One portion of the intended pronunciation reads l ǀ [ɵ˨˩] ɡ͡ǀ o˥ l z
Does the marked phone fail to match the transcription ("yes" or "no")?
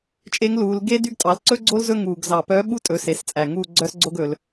yes